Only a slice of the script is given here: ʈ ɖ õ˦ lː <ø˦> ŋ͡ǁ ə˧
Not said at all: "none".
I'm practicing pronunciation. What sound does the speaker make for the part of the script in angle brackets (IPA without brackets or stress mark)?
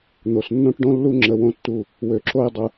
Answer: u˦